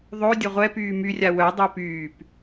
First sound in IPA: ðˤ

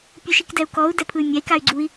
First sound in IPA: pʲ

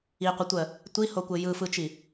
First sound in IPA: i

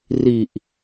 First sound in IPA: r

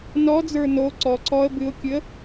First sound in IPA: n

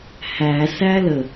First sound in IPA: h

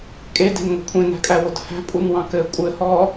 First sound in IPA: kʼ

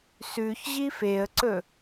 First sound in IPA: s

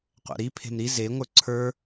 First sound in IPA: qʷ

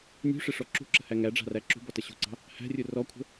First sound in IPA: nʲ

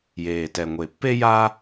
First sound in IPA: j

